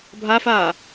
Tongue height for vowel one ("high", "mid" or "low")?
low